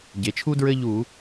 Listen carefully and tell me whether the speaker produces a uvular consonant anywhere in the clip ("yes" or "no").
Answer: no